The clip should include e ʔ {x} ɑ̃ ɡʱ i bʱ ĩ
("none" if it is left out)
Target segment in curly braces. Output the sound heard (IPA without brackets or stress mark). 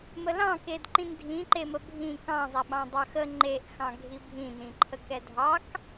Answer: x